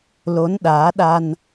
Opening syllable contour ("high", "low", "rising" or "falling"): rising